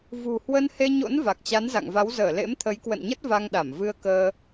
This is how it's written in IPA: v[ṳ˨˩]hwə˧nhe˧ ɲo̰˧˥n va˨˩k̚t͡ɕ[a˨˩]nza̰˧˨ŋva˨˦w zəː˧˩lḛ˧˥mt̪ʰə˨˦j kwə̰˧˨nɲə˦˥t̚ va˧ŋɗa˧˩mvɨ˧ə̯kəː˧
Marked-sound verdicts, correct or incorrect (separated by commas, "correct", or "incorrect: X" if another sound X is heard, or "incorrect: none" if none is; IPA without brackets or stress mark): correct, incorrect: a˨˦